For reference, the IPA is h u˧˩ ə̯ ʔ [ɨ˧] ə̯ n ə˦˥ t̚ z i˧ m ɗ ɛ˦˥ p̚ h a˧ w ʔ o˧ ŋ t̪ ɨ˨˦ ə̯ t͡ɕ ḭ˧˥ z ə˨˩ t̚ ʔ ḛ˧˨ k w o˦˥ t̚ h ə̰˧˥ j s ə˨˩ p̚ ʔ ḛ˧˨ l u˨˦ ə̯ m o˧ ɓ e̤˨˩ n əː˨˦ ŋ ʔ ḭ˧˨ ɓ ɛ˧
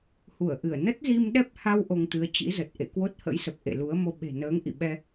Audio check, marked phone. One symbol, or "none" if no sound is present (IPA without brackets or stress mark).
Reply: ɨ˧˩